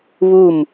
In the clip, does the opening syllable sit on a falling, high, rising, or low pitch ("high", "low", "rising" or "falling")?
falling